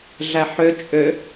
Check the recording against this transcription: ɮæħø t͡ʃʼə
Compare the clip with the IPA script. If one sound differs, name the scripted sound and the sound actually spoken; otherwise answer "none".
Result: ə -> ø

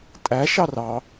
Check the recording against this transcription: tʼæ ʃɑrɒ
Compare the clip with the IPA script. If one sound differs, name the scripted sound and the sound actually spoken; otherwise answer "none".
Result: ɒ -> ɑ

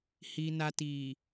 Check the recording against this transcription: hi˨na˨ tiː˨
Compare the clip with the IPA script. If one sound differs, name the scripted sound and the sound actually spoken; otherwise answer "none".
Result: none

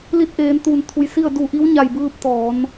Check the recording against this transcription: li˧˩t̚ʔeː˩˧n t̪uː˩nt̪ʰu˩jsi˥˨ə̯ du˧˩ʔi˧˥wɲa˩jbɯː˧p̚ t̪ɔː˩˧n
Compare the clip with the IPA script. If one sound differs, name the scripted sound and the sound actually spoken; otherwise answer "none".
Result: none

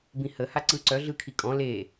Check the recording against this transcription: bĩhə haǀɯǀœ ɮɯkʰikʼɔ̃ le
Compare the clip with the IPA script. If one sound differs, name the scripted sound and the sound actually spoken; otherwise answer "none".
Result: none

